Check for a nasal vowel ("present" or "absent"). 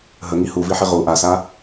absent